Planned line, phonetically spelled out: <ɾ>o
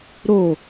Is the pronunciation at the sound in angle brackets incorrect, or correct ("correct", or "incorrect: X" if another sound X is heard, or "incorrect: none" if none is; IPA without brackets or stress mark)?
correct